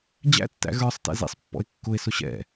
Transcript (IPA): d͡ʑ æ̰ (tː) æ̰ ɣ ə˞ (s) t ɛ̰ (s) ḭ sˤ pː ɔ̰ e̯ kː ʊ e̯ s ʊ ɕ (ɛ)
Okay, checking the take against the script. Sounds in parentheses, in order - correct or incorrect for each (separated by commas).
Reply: correct, incorrect, incorrect, incorrect